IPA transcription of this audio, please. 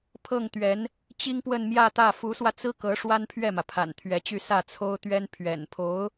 pʰ ɤ˥˩ ŋ t̪ ɥ ɛ˧˥ n | t͡ɕ i˥ ŋ p w ə˥˧ n m j ä˥˧ t̪ ä˥˩ f u˧˥ s w ä˧ t͡s ɹ̩˥ k ɤ˧˥ ʂ w a˥ n pʰ ɥ ɛ˥˩ m ä˩ pʰ a̰˨˩ n t̪ʰ ɥ ɛ˧˥ t͡ɕ y˥˧ s ä˥˩ t͡sʰ o˥ ʊ̯ t̪ ɥ ɛ˥ n pʰ ɥ ɛ̰˨˩ n pʰ o˧˥ ʊ̯

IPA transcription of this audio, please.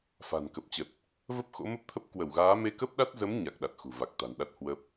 f a̤˨˩ n k ə˨˩ p̚ t͡ɕ ə˨˩ t̚ | v ə˦˥ p̚ x o̰˧˥ m ə˦˥ p̚ t̪ʰ ə˦˥ p̚ k w ə˧˩ w ɣ aː˨˦ m e˧ k ə˦˥ p̚ ɗ a˦˥ t̚ z ə˨˦ m ɲ a˨˩ k̚ ɗ a˨˩ t̚ x ṳ˨˩ v a˨˩ k̚ t̪ a̤˨˩ n ɗ a˦˥ t̚ h w ə˦˥ p̚

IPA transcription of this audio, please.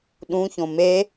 ɗ ũ ç õ m e

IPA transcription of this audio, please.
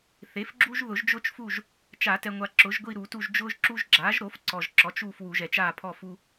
θ e˩˥ f ɡ͡ǁ u˦ ʒ ð ʊ˨˩˦ ʒ d͡ʒ ʊː˦ t͡ʃ f u˦˨ ʒ | t͡ʃ a˨˩˦ t ɛ˨ ŋʷ a˨ ǁ ʊ˩˥ ʒ ɡʷ i˦˨ ɾ u˨˩˦ t u˦˨ ʒ d͡ʒ ʊː˦ ʒ ǁ u˦ ʒ ɡ͡ǁ aː˩˥ ʒ ɾ o˩˥ f ǀ ɔ˨ ʒ ǁ ɔ˩˥ t͡ʃ uː˦˨ f w u˨˩˦ ʒ ɛ˨ t͡ʃ aː˦˨ pʰ ɔ˦˨ f u˦

